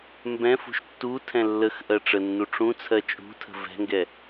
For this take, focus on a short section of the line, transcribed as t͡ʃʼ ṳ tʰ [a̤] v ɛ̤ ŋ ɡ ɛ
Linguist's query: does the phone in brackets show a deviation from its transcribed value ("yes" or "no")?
yes